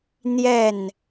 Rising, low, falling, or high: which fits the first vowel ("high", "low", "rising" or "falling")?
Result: falling